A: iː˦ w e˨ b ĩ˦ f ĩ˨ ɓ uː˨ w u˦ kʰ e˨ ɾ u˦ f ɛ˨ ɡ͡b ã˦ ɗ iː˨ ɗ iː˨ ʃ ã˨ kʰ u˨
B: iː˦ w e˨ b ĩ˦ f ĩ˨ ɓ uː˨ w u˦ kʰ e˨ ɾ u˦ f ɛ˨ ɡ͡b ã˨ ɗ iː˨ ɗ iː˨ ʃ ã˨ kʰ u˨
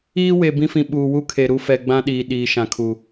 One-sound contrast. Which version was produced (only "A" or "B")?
A